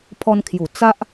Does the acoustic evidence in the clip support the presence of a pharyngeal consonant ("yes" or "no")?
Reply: no